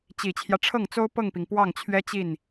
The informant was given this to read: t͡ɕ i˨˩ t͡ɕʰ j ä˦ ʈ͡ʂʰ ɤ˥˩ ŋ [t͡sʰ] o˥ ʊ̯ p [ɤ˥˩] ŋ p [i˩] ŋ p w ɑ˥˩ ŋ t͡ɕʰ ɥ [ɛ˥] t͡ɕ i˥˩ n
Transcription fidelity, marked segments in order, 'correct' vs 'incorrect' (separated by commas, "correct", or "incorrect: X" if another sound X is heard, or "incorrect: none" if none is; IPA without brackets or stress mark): incorrect: t͡s, correct, correct, correct